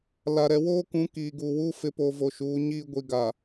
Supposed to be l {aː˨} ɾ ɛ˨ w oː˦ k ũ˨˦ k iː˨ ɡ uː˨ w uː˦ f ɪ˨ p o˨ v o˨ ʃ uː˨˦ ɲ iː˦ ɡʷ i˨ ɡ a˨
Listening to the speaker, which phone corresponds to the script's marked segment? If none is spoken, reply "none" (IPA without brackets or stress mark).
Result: a˨